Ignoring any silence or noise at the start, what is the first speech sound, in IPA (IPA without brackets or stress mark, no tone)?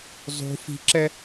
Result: zˤ